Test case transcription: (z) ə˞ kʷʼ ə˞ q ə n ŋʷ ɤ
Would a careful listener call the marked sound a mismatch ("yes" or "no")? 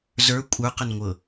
no